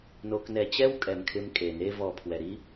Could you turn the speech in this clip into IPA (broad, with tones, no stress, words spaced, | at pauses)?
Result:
no˧knɛ˧ t͡ɕɛ˦wkʼɛ˨mkʰɪ˧m kʼe˨ne˦vɔ˧pʰwɛ˨ ɾi˦